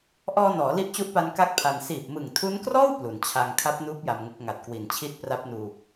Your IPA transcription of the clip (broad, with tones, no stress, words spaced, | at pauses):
ʔɔː˧nɔː˩˦ li˦˥ʔt͡ɕu˦˥ʔpa˧n ka˥˩k̚pʰa˧n siː˨˩p̚mɯ˨˩ŋtʰu˦˥nkrɔː˥˩w plu˩˦nt͡ɕʰa˧ŋ kʰa˦˥p̚nuː˦˥p̚ ja˧mŋu˦˥k̚ ŋa˨˩t̚kwi˨˩nt͡ɕʰi˥˩t̚ pra˦˥p̚nuː˧